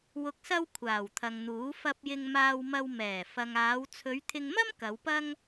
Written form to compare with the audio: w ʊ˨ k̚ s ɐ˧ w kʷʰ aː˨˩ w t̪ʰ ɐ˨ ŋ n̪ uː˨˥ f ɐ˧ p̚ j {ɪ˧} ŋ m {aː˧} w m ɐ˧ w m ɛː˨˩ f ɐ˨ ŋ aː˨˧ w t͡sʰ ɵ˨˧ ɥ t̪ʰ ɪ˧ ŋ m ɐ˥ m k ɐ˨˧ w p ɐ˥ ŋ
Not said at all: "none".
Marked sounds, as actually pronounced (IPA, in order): ɪ˧, aː˧

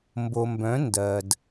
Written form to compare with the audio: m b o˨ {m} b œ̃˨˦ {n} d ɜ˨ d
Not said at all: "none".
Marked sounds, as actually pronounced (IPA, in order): m, n

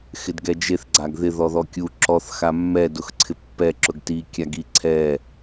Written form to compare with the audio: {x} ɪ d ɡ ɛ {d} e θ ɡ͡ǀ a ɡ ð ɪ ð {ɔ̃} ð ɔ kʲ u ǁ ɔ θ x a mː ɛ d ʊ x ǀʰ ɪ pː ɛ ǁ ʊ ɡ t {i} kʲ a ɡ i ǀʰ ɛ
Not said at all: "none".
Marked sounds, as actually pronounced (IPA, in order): x, d͡ʒ, ɔ, i

